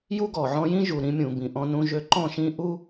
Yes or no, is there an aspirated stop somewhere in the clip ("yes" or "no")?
no